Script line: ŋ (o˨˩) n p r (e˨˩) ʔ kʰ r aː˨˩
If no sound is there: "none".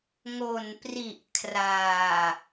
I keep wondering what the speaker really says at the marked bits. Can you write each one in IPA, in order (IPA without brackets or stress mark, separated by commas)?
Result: o˨˩, i˨˩